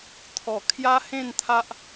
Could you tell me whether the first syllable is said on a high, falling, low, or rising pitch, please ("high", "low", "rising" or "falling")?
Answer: low